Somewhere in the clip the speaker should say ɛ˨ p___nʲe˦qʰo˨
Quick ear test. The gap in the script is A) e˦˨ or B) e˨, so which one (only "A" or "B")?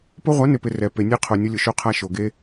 B